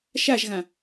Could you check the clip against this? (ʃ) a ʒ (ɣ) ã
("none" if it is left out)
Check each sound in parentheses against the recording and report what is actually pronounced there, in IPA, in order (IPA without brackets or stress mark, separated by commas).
ʃ, ɣ